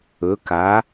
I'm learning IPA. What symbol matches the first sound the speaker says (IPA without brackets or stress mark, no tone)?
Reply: ɵ